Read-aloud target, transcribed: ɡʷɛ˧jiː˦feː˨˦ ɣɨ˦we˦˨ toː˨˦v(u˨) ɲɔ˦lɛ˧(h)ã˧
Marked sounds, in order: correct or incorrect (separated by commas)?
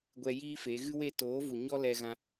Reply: correct, incorrect